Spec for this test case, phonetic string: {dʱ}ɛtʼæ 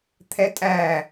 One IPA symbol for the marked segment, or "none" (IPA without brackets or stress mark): t̪ʰ